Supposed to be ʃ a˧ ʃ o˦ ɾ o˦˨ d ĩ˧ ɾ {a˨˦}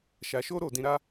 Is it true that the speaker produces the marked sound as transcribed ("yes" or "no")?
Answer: no